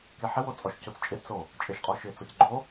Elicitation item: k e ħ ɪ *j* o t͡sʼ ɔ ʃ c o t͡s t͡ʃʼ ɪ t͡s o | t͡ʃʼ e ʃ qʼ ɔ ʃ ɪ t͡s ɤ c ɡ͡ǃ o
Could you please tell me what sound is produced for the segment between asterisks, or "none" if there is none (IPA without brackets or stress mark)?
w